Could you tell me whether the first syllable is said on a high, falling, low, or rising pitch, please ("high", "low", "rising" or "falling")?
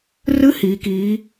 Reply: rising